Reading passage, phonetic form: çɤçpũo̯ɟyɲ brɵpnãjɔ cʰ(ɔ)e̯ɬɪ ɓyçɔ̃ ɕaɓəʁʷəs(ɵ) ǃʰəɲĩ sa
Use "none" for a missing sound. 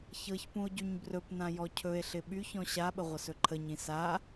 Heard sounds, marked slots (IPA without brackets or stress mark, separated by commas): ɵ, ɵ